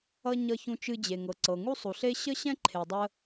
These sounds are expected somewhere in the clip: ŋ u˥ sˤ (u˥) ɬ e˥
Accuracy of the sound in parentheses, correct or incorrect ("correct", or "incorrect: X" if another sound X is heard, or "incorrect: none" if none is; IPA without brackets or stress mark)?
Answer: incorrect: u˩